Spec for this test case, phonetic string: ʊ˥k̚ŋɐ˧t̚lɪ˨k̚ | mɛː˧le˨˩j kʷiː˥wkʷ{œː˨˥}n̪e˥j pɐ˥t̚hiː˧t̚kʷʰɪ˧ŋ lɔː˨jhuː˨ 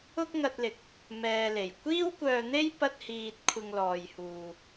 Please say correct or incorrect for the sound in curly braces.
incorrect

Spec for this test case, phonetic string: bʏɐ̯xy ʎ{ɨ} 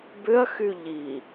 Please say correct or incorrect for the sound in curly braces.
incorrect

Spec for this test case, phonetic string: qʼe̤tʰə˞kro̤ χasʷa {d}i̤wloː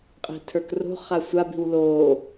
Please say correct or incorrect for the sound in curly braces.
incorrect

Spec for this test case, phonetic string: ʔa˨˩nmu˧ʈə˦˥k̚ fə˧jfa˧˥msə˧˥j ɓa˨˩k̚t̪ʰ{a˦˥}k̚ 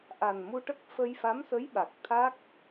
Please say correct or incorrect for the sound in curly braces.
correct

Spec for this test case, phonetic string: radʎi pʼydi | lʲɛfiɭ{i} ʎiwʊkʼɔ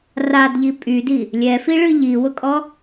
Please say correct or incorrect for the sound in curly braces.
incorrect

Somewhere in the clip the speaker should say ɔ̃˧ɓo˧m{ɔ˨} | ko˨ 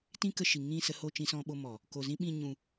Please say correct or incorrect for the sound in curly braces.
correct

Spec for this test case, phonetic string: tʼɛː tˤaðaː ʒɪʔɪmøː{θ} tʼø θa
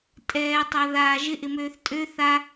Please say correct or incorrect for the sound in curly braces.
correct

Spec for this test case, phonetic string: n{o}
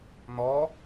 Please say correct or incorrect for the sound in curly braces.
incorrect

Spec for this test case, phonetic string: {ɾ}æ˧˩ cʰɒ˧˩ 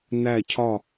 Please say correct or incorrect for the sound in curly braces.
incorrect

